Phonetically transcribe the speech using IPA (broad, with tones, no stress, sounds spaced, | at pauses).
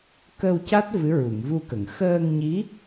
k ə˧ w c a˦˥ t̚ v ɨ˧˥ ɹ u˨˩˨ ŋ v u˧ k ə˨˩˨ ŋ x əː˧ ŋ ɲ i˧˥